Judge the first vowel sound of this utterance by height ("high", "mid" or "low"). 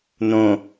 mid